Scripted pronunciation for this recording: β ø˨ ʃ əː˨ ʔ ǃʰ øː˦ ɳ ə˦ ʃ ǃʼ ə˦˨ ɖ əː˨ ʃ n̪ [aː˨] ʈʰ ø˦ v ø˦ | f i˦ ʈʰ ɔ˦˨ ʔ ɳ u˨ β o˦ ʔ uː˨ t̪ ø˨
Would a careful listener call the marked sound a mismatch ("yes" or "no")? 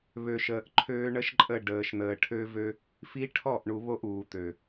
yes